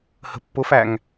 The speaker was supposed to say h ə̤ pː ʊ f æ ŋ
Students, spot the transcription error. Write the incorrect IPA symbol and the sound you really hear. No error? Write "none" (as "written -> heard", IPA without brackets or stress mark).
none